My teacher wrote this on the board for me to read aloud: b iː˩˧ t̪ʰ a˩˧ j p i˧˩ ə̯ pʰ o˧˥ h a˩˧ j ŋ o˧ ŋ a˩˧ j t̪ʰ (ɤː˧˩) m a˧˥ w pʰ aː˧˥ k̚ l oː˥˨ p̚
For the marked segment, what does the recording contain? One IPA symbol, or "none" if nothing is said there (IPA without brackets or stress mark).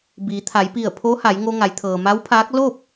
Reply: ɤː˩